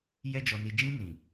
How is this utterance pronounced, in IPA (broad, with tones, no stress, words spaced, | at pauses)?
jɛ˦d͡ʒɔ˧ni˧ d͡ʒĩ˧nĩ˨